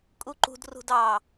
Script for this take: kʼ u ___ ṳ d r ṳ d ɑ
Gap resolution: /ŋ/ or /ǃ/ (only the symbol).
ǃ